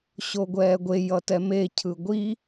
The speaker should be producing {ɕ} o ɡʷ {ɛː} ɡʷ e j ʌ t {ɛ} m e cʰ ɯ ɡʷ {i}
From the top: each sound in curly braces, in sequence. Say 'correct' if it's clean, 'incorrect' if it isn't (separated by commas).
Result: correct, correct, correct, correct